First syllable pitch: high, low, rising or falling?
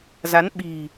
rising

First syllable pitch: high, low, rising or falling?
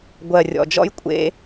low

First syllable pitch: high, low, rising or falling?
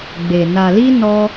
low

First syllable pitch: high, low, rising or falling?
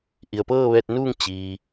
low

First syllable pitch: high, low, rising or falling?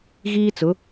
high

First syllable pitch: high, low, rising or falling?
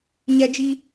high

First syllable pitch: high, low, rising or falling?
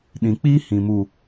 low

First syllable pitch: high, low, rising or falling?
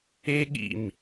high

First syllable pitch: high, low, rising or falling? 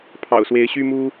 low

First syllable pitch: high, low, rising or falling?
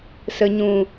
low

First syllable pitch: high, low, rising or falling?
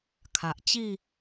low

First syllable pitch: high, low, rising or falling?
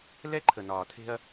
high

